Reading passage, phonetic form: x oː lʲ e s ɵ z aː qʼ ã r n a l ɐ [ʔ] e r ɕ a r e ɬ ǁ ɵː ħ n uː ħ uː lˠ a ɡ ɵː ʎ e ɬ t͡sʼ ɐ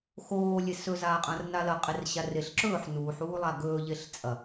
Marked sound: incorrect: qʼ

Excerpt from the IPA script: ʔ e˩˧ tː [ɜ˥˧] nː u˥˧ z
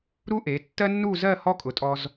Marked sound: incorrect: ɜ˥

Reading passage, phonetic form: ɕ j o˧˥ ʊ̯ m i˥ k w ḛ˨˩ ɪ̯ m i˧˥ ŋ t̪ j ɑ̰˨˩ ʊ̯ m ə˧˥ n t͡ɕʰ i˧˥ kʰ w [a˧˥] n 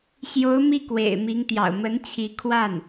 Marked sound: incorrect: a˥˩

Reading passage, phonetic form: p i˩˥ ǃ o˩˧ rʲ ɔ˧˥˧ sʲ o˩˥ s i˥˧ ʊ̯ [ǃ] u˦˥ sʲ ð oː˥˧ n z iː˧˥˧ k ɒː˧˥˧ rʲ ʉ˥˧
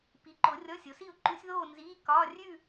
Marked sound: correct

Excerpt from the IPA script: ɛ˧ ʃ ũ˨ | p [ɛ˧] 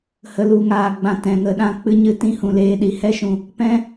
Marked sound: incorrect: ɛ̃˧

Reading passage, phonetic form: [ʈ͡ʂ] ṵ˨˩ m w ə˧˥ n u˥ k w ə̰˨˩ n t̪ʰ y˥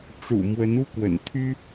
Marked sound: correct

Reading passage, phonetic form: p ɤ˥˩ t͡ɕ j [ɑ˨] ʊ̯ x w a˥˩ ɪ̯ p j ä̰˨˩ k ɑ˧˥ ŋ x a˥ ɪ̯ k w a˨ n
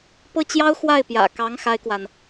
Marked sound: incorrect: ɑ˥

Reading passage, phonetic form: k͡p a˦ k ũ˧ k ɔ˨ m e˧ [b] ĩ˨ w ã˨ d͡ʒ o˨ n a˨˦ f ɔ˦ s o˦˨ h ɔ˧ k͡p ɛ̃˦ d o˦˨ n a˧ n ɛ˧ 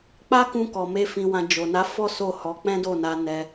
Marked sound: incorrect: f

